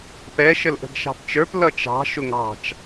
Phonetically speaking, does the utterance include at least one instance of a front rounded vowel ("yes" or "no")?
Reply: no